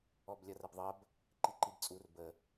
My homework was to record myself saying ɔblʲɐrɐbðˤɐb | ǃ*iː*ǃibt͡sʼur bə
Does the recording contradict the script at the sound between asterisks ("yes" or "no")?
yes